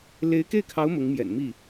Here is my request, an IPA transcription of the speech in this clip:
le˧˥ɪ̯ke˥˩ɪ̯kʰɑ˧˥ʊ̯ mʊ˧˥ŋmjɛ̰˨˩nmi˥˩

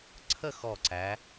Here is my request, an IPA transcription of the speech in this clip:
ǀʰə˥˧ xɔ˧˩ǀæ˩˧

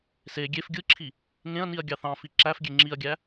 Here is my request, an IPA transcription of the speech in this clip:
se ɡʲef ɡʲɯǁʰi | ŋẽɐ̯niɐ̯ ɡʲɑθɑ̃fi ǁæfɡʲe ŋ͡ǁiɐ̯ɡʲæ

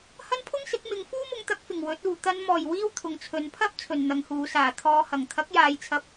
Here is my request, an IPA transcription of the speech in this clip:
hɐ˥npʰʊ˥ŋsɪ˨˥k̚ mɪ˨˧ŋfuː˥ mʊ˧ŋt̪ɐ˨˥k̚fɪ˨˩ŋ wɵ˨˥t̚uː˨ t̪ɐ˨˧nmɔː˨˩j wiː˥wt̪ʰʊ˨ŋt͡sʰɵ˨˧n pʰɐ˥p̚ t͡sʰɵ˨nn̪ɐ˨˧ŋhuː˨˧ saː˨˩t̪ʰɔː˨˧hɐ˨˩ŋ t̪ʰɐ˨˥k̚jaː˨j t͡sʰɐ˧p̚

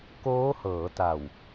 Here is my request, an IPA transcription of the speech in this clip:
koː˦˥hɤː˩˦ta˨˩w

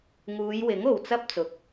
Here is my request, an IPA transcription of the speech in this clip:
ŋuː˨˧jwɪ˨˥ŋ o˨wt͡sɐ˥p̚t͡sʊ˨k̚

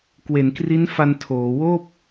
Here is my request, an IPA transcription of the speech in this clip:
kwe˩˦nkri˦˥nfa˧n tʰoː˩˦ woː˥˩p̚

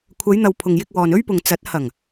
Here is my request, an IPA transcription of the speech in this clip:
kʷʰɐ˨˧jn̪ɐ˨w pʰʊ˨ŋjɪ˧k̚wɔː˨n ɵ˥ɥpʊ˨ŋt͡sɐ˨˥t̚ hɐ˨˩ŋ

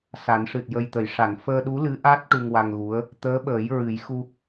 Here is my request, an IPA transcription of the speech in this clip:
sa˨˩˦nʂɨ˨˩t̚jə˧jt̪ə˨˩j ʂa˨˩˨nfəː˧ɗu˧˥ lɨ˧˥ʔa˦˥t̚ ʈu˧ŋwa˧ŋɣu˧˥ə̯ | t̪əː˧˥ɓəː˨˩˦jɹɨ˨˩˦jxu˧

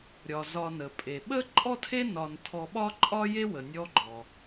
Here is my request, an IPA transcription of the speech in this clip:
ɾʲɒ˩zɒ˨nə˩pʼe˩ ɓə˥ ǃʼɔ˥tʰe˥ nɒ˨n tʰɔ˨ɓɒ˥ǃʼɒ˥je˥ wə˨nʲɔ˦ɡ͡ǃɔ˨

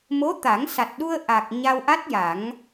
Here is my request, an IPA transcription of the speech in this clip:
mo˧˥t̪a˨˩˦ŋsa˨˩t̚ɗu˧ə̯ ʔa˨˩k̚ ɲa˧wʔa˦˥t̚ja˨˩˦ŋ

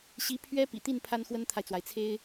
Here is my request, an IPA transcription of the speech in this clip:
ɕi˧˥ pʰɥɛ˥pḭ˨˩t̪i˥˩n pʰa˥nxwə˥nt̪ʰa˨ɪ̯t͡swa˩ɪ̯ t͡sʰe˥ɪ̯

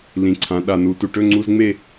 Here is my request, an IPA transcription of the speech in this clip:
lĩ˩˧ǀʰã˩˧ ɗa˨˩nu˩˧ tu˨˩ʈɵ˧˥˧ŋ͡ǀu˧˥˧zŋ͡me˥˧

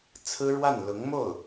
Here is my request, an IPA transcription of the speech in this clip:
t͡sʰɹ̩˥ɻwa˥˩n lʊ˧˥ŋmo˥˩ʊ̯

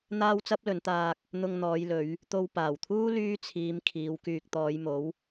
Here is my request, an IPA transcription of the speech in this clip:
n̪aː˥wt͡sɐ˥p̚lɵ˨˧nt̪aː˧k̚ | n̪ʊ˧ŋn̪ɔː˨˧j lɵ˨˧ɥ | t̪o˧w paː˨˩wt̪ʰuː˥ lyː˥t͡sʰiː˨˧m kʰiː˨˧wkyː˧k̚ t̪ɔː˨˧jmo˨˥w

